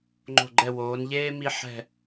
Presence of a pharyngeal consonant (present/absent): present